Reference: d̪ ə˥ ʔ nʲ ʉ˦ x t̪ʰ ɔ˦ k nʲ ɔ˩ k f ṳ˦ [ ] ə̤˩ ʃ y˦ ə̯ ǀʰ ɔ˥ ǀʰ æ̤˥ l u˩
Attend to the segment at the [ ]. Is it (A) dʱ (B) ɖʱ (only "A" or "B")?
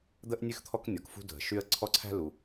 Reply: A